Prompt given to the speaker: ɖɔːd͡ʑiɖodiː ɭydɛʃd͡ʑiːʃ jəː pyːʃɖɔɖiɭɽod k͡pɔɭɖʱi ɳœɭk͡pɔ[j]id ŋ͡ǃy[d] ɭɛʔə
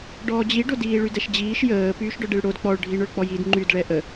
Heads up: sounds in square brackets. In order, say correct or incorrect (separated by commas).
correct, correct